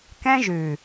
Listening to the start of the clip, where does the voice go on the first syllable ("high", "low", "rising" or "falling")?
high